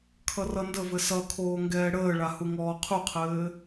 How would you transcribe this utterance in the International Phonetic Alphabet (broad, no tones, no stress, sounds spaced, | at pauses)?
kʰ ʌ r ʌ n d ə v ɘ s ʌ kʰ oː ŋ ɡ ɛː ɽ əː ɭ a h u ŋ ɔː qʰ u qʰ ɘː